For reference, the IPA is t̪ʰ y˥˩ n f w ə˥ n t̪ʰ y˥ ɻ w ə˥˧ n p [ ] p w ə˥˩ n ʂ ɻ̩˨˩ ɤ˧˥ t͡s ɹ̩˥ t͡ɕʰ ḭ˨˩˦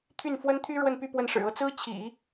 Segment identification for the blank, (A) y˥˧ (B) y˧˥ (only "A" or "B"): A